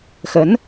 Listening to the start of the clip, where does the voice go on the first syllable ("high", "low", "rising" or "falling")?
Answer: rising